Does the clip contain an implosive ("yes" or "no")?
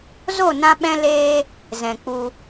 yes